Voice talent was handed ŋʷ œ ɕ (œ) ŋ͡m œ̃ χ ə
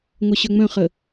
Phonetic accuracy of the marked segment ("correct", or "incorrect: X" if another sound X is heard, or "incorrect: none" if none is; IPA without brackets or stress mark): correct